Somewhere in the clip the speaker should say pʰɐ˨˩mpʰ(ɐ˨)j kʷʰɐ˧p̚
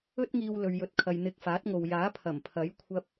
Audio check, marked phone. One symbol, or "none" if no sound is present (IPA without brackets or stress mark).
ɐ˨˥